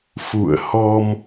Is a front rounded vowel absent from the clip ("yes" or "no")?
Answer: yes